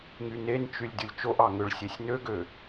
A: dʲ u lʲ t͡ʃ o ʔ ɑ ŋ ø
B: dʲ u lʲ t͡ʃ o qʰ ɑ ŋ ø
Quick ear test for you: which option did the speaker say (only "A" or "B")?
A